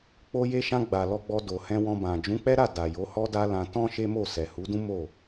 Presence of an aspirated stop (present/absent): absent